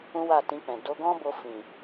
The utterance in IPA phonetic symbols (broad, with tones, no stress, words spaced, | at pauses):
ũ˦wa˦˨tĩ˧k͡pɛ̃˨ do˧ɡɔ̃˦bo˧ fĩ˨